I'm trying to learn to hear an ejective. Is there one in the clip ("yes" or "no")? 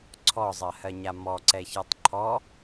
no